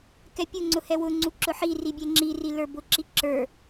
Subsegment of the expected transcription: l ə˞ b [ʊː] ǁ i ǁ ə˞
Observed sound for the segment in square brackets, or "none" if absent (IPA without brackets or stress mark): ʊ